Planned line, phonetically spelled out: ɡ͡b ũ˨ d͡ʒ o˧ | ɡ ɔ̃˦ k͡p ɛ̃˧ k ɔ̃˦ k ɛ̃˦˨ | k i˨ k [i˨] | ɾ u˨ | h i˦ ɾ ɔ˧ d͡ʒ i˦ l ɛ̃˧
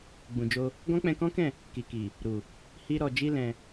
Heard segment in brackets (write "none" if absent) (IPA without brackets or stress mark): i˨